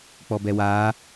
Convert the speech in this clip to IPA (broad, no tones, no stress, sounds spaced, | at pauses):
k͡p ɔ b ɛ w aː